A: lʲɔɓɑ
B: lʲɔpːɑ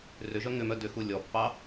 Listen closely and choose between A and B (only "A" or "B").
B